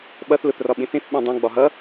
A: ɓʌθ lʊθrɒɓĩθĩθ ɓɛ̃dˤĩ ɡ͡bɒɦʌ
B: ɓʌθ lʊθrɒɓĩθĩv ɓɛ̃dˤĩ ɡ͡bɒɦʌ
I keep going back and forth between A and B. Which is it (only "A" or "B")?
A